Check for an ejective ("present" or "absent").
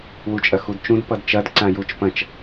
present